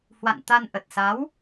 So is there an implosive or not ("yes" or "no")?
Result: no